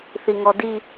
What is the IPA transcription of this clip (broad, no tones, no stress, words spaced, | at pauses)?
θiŋɔdi